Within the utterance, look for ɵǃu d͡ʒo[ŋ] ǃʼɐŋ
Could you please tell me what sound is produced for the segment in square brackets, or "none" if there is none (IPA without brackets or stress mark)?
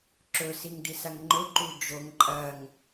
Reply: ŋ